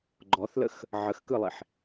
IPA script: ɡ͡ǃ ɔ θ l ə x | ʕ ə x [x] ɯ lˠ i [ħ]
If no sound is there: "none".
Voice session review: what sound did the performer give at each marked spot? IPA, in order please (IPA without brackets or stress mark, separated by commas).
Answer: k, ħ